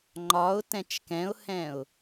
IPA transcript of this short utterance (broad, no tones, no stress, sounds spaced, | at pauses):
ŋ͡ǃ ɒ ʊ̯ t ɛ̃ t͡ʃ k ɛ̃ ʊ̯ h ɛ̃ ʊ̯